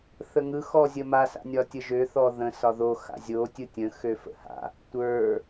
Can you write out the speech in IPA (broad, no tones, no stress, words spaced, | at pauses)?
θəŋɯ xɔzʲəma sa̰nʲɒtʲəʒø θɔðə̃ sɒðo xa̰zʲo tʲɯtʲə̃ xøfə̰ha̰ | tʷə˞